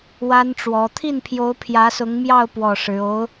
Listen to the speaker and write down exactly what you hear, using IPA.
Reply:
wa˥nʈ͡ʂwɔ˧˥ t̪ʰi˥˩npʰjo˧˥ʊ̯ pʰjä˧˥sʊ˧˥ŋmjɑ˥˧ʊ̯ pwɔ˥˩ʂɻ̩˧˥ o˧˥ʊ̯

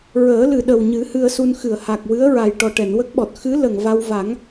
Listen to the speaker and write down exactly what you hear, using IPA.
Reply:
ɹəː˨˩˦lɨ˨˩ɗə˨˩wɲɨ˨˩˦ hɨ˧ə̯su˧n xɨ˨˩˨ə̯ha˨˩k̚ wɨ˧˥ə̯ɹa˨˩j ʈɔ˨˩ʈɛ˨˩˨n wə˦˥k̚ɓɔ˨˩t̚ xɨ˧˥ lə˨˩ŋva˧w va˨˩˦ŋ

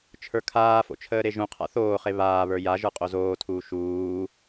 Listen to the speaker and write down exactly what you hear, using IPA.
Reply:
t͡ʃʰə˞kʰaːfo̰ t͡ʃʰəːɾeʒũqʰa̰ θoːχe βaːβə˞ jaʒə˞ qʼozoːtʰuː ʃuː

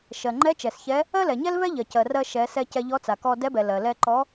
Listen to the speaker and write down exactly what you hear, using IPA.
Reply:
ʃɜ˩ŋ͡ǃɛ˧˥ t͡ʃɛ˩sçɛ˧˥ | ɜ˥lɛ˩ɲɛ˥lvɛ˥ ʎɜ˩cɜ˩rɜ˧ ʃɛ˩˧sɛ˧ cɛ˧ʎɔ˧˥t͡sa˩kɔ˧ dɛ˧˥bɛ˩ lɜ˩lɛ˧ǃɔ˧˥

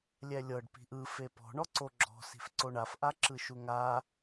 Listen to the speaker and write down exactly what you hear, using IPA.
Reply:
lʲɛlʲɤɖ pi̤ʔɯ fepɔ̤ ɳɔǀoɡ͡ǁɔ̤ si̤fǀoɳaf ʔaǁɯʃuŋa

